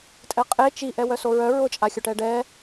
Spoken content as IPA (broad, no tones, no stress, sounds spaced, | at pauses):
tʼ ɛ qʼ e t͡ʃ i ʔ ɛ w œ s o ɹ œ ɹ ʊ t͡ʃʼ a xʲ o ʈ ɛ ɖ ɛ